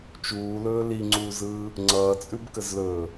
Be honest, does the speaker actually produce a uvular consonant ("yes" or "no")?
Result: no